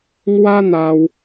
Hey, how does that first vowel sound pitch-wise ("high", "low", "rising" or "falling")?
high